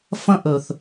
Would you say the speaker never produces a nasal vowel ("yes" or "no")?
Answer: no